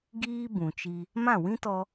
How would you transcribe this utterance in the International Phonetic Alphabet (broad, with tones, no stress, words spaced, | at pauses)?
ɡiː˦bũ˨t͡ʃi˧ | mã˦˨wĩ˦tɔ˧